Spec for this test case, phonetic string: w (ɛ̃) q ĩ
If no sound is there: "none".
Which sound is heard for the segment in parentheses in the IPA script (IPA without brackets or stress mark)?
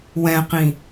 ɛ̃